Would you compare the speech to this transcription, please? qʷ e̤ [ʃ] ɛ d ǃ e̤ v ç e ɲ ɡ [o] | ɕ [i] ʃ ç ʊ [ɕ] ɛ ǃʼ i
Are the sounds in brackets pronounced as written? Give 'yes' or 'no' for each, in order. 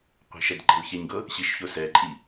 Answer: yes, no, yes, no

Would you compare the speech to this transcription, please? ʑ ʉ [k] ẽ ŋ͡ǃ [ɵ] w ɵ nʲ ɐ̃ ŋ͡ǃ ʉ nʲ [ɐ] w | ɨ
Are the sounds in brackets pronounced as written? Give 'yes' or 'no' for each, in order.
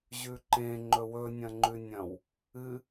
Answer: no, yes, no

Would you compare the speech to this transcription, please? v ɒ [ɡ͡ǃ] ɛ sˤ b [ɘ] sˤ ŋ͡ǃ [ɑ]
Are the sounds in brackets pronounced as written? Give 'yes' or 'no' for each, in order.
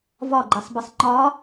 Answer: yes, yes, no

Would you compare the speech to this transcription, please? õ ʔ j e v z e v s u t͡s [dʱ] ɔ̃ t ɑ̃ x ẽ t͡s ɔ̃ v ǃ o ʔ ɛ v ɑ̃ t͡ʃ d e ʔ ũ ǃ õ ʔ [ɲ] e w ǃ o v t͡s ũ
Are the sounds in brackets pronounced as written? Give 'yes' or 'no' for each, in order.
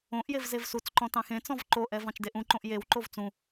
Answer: no, no

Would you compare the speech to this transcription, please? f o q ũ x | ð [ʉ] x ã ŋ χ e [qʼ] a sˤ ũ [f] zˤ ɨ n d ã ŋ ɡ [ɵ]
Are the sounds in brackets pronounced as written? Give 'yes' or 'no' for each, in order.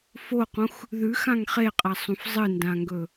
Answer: yes, yes, yes, yes

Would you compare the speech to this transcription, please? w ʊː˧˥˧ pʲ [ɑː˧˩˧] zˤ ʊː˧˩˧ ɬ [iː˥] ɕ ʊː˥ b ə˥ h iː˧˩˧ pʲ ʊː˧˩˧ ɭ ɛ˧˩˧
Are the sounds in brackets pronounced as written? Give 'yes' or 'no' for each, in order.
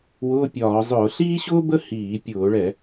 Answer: no, yes

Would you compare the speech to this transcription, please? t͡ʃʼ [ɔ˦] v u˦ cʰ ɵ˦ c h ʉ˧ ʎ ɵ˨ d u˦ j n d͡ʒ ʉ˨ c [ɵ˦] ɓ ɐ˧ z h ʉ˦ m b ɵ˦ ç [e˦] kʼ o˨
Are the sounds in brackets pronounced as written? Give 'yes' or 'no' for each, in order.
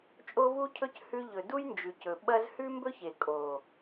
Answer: no, no, no

